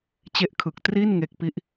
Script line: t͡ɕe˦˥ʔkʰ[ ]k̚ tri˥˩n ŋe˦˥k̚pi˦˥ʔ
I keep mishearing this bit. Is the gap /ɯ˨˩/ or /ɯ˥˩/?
ɯ˨˩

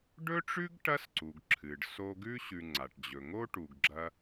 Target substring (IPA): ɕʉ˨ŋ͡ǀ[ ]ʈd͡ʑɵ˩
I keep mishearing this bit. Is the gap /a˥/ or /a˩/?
a˩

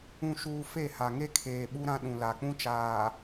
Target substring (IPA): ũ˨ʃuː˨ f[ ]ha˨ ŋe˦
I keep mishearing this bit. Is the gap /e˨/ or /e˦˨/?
e˦˨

